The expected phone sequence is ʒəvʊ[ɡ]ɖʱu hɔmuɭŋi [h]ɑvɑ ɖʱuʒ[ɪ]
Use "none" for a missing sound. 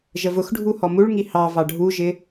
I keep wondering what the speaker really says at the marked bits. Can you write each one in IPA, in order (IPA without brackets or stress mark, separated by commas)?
x, h, ɪ